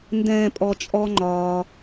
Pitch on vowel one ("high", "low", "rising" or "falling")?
low